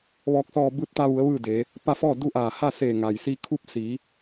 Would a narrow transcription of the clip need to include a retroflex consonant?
no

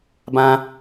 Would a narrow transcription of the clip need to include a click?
no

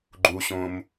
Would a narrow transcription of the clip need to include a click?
yes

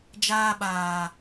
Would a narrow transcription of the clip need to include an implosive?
yes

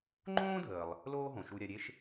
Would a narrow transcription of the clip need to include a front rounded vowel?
no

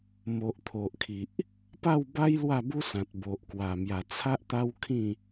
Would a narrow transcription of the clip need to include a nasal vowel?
yes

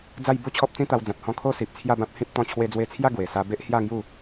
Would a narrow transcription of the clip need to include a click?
no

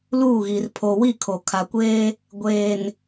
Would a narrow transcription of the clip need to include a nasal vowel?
no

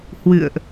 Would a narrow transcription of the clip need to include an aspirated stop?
no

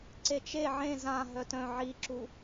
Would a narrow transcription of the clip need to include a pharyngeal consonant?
yes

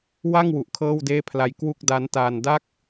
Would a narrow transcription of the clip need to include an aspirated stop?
yes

